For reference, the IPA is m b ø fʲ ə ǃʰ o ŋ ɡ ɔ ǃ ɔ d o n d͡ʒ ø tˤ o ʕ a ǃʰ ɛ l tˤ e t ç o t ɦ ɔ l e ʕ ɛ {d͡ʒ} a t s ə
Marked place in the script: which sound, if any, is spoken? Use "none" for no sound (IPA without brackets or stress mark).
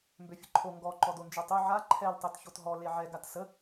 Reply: ɡ